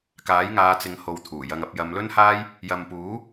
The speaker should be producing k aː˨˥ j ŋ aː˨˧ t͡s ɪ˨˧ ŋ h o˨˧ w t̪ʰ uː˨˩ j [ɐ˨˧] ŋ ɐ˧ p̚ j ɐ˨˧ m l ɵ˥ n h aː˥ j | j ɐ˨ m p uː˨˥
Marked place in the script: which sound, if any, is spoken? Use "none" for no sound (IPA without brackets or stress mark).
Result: ɐ˧